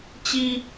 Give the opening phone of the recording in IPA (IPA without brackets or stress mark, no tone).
t͡ɕ